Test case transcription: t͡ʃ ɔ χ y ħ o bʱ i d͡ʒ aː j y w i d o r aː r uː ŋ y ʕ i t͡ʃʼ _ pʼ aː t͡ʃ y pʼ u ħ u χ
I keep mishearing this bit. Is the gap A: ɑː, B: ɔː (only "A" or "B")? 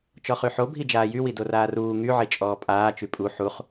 B